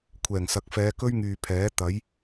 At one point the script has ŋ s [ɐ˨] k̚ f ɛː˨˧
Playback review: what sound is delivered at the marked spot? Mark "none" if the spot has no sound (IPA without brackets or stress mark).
ɐ˨